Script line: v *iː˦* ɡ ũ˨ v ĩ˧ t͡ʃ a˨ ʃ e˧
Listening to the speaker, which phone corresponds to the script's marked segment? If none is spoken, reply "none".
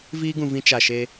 iː˦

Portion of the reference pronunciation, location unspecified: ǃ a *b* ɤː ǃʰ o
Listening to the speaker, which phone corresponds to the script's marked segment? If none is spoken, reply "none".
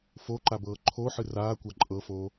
b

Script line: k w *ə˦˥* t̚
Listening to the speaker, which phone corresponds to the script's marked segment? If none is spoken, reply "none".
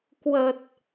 ə˨˩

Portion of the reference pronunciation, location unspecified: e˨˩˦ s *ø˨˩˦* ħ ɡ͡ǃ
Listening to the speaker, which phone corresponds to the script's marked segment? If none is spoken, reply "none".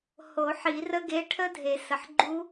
ə˨˩˦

